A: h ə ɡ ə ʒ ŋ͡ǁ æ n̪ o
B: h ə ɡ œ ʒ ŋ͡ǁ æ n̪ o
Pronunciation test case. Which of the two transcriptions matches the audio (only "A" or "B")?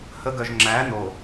B